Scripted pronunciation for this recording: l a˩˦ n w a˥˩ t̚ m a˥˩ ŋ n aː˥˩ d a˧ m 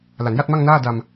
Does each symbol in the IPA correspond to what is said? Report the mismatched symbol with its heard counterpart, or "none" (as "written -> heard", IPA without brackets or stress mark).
w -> j